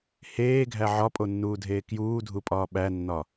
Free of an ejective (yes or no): no